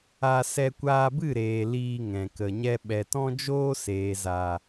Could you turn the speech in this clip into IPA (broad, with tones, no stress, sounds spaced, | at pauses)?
a˧ s ɛ˧ kʷ aː˧ b ɨ˦˨ ɾ eː˨ l iː˧ ŋ ɛ̃˨ k ə˨ ɲ ɛ˧ ɓ ɛ˨ t ɔ̃˦ d͡ʒ oː˦ s eː˨ z a˨